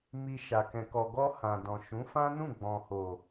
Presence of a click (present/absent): absent